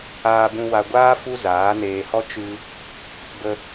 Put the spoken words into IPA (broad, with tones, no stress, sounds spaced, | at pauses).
aː˧ b ũ˧ w a˧ ɡʷ aː˦ f u˦ z aː˨˦ n eː˧ h ɔ˦ t͡ʃ ɨ˧ | b ə˧